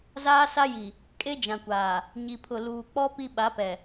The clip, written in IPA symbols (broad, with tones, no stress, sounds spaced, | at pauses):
z aː˦ s a˦ j i˨ | kʼ e˦ d͡ʒ ã˨ kʷ aː˨ | ɲ i˨ pʰ ʊ˨ l uː˨ k͡p ɔ˦ p i˦ ɓ a˨˦ p ɛ˨